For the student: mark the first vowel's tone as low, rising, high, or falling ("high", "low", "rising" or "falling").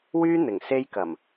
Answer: high